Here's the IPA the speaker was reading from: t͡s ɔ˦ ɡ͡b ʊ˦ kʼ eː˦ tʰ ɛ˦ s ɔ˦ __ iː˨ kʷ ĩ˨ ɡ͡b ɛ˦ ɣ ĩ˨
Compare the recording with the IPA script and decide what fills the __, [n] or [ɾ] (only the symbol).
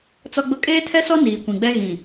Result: n